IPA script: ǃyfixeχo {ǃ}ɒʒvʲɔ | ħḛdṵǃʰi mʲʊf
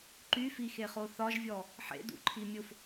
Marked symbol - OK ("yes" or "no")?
no